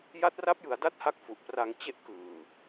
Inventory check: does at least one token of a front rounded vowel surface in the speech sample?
no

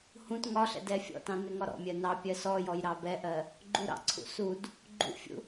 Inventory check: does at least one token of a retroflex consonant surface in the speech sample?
no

